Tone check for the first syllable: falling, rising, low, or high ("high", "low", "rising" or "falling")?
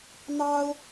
high